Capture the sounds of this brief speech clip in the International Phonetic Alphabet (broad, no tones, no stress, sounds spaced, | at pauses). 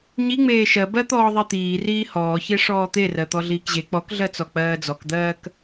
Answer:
ɲ i ŋ͡m eː ʃ ɜ b ɜ t̪ ɔː ðˤ i t̪ iː r iː h ɔː ç e ʂ ɔː t̪ e r ɜ t̪ ɔ ɮ iː k ʑ e k͡p ɔ k ɮ ɜ t͡s ɔ k͡p ɜː d͡z ɔ k d̪ ɜː k